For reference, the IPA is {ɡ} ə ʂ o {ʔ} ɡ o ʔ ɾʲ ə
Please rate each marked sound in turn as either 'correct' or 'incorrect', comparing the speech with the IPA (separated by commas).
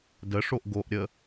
incorrect, correct